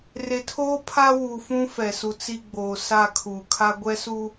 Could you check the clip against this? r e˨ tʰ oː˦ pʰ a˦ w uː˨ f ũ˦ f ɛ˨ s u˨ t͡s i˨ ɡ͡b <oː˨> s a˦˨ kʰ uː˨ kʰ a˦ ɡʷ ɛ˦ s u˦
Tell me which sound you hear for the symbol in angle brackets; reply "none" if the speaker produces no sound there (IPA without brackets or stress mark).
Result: oː˨